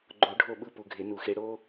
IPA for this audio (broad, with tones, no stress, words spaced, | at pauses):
ɡ͡ǃo˨˩˦ ɖʱo˦˨ɓɯ˦˨ pu˨ɡʱe˨˩˦nu˨˩˦xe˨˦ ɽo˦